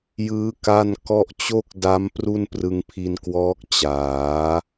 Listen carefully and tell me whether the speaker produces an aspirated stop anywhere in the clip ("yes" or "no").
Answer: yes